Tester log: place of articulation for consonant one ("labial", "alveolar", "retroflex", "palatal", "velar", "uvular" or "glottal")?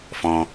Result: labial